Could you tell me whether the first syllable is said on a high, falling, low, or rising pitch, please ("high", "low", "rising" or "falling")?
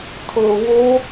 low